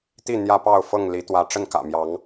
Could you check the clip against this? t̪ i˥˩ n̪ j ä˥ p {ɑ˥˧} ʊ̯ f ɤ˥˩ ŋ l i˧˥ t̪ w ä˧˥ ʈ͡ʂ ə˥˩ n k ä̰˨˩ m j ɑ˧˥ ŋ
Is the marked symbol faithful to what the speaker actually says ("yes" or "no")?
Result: yes